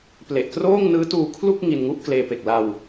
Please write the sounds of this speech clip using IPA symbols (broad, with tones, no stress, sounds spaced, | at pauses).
p l e˨˩ ʔ k r oː˥˩ ŋ n ɯː˦˥ t uː˧ kʰ l u˥˩ k̚ ŋ i˧ n ŋ u˥˩ ʔ k l eː˧ p e˨˩ k̚ l a˧ w